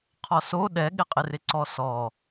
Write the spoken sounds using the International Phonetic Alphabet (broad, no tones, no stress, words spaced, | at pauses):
qʰɔso ɗɛɠɪqʼɪ rɪǀɔsɔ